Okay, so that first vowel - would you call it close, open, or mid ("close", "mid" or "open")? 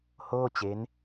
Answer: mid